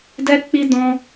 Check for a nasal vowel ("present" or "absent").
present